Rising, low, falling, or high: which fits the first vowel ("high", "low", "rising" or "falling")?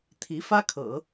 rising